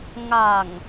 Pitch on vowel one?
low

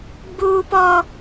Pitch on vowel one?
high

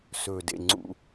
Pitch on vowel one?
low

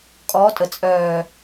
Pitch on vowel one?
rising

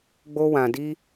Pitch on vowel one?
high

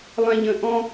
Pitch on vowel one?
low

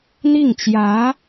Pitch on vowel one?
falling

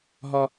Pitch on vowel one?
high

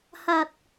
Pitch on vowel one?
low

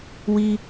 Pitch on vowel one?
high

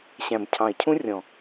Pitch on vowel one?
low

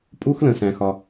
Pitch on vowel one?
high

